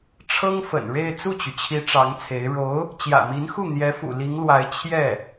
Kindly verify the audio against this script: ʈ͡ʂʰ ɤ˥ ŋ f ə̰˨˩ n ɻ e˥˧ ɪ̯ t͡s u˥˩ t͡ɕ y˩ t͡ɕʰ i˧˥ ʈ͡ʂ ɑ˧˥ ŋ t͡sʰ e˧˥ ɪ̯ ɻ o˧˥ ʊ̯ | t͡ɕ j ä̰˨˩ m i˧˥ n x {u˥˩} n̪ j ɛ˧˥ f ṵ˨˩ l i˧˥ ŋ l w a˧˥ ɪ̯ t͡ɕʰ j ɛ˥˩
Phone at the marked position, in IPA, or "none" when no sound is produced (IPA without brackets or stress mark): u˥˩